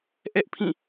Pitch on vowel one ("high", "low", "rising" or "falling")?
high